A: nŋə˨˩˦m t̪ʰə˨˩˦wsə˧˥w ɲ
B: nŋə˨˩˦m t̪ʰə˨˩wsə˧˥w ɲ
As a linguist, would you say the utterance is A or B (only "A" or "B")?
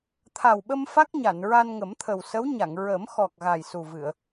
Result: B